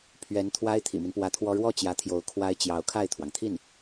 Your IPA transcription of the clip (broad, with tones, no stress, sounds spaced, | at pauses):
pʰ ɥ ɛ˧˥ n t̪ʰ w a˥ ɪ̯ t̪ʰ ḭ˨˩ m i˦ n p w ä˧˥ t̪ʰ w ɔ˥ ɻ w ɔ˥˩ t͡ɕ j ä˧˥ t̪ʰ j o˧˥ ʊ̯ kʰ w a˥ ɪ̯ t͡ɕ j ɑ˧˥ ʊ̯ kʰ a˥˩ ɪ̯ t̪ʰ w ɑ˩ ŋ t̪ʰ i˥˩ n